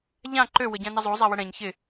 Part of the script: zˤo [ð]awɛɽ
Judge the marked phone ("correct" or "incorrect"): incorrect